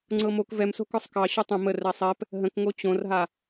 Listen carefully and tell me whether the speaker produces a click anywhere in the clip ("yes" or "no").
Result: yes